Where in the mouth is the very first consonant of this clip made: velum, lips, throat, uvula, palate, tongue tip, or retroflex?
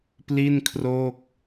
lips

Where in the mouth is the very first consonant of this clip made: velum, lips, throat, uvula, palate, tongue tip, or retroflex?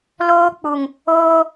tongue tip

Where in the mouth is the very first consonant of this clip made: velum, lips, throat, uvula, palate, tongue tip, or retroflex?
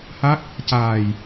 throat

